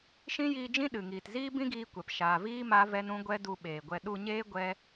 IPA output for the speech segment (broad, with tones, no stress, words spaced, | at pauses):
ʃĩ˦jiː˧d͡ʒĩ˦ ɗɨ˨ŋiː˨tziː˦ bĩ˦ɡiː˧kʷɛ˨p ʃaː˨viː˦ ma˦vɛ˦nũ˦ ɡʷɛ˦du˧ɓeː˨ɡʷɛ˧ ɗu˧ɲeː˦ ɡʷɛ˦